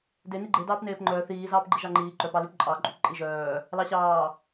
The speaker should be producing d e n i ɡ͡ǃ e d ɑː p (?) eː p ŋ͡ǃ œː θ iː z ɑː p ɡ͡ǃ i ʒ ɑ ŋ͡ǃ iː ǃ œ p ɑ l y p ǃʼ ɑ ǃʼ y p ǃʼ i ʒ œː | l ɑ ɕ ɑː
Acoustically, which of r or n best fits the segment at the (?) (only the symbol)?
n